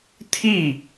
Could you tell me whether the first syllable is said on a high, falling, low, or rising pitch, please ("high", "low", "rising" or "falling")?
falling